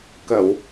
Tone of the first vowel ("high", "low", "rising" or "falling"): low